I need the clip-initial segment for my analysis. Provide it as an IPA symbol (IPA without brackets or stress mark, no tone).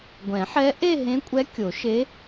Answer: ɡʷ